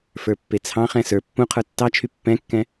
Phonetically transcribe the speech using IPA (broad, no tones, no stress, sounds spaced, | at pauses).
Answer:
f ə˞ pː e t͡sʰ ɑ̃ χ ɛ̃ s ə˞ pː ũ qʰ ə˞ tː ɑ t͡ʃʰ y pː ɛ̃ kː ɛ̃